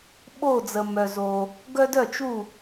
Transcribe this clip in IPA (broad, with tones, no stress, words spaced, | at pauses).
ɓo˥˧d͡zə˧ mœ˧zo˧ | ɡœ˥dœ˥˧t͡ʃu˥˧